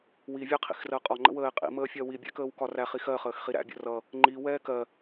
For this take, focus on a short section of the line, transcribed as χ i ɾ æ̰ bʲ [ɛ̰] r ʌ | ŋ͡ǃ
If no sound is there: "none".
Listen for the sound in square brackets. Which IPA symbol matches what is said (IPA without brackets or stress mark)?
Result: ə̰